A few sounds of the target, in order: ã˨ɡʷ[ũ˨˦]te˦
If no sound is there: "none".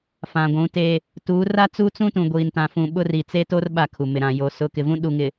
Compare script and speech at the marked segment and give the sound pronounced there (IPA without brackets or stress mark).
ũ˨˦